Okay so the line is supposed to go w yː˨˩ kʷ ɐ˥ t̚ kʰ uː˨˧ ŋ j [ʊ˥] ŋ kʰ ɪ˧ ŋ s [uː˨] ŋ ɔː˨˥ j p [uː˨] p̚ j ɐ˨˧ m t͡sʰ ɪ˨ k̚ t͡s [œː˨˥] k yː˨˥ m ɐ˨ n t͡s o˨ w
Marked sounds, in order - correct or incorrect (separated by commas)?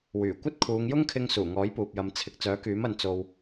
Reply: correct, incorrect, correct, correct